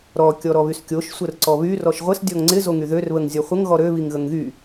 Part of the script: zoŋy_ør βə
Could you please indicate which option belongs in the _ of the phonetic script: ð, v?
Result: ð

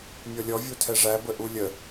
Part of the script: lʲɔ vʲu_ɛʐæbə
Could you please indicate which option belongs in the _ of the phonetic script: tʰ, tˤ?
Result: tʰ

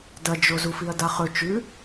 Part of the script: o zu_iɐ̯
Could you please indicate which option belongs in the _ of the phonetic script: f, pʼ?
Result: f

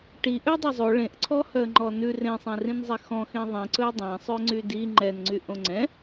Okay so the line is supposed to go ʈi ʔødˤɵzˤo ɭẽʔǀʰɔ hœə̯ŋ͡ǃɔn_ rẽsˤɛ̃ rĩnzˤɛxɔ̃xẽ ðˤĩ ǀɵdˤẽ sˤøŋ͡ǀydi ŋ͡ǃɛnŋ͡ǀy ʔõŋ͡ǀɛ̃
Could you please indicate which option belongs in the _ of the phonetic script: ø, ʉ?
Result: ʉ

